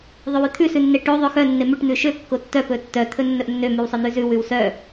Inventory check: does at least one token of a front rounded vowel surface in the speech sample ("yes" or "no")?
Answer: yes